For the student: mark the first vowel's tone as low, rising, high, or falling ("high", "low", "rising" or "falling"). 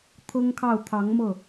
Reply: high